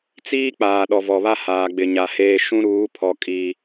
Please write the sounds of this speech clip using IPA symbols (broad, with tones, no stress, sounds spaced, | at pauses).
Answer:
t͡s iː˦ k͡p aː˨ ɗ ɔ˨ v ɔ˨ β a˦ h aː˨ ɡ͡b ɪ˨ ɲ a˨ h eː˦ ʃ ũ˦ ɾ uː˨˦ pʰ ɔ˨ kʼ i˦